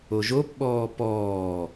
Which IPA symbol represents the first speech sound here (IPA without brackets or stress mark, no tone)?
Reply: o